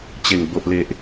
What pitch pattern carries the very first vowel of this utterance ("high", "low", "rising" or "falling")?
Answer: low